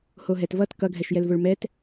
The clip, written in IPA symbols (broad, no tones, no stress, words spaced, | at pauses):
hoɦɛtvʌt kʌɡʱɛʃ jɛlvoɭmɛt